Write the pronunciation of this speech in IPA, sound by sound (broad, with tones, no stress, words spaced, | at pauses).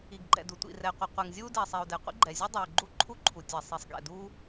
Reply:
i˩ɡɡ͡ǃɛ̰˩du˩ tʷḭ˩rɛ˩ qʷi˩qʷɛ˩ŋ zʲuː˥diː˩sˤiː˩u̯dɛ˩ qʷḭ˥ɡ͡ǃɛ˩zʲu˥ dˤuː˩ɡ͡ǃu˥ǃʰu˥ǃʰu˩ tʲɛ˩ sˤi˩sˤɡɛ̰˩duː˥